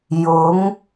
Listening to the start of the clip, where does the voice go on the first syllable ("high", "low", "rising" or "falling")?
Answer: rising